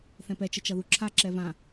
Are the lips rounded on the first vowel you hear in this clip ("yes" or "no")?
no